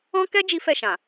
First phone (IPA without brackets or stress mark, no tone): ɔ̃